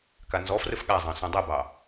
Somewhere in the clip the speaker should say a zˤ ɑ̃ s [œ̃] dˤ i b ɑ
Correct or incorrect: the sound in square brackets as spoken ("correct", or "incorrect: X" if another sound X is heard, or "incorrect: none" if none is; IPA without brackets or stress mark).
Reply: correct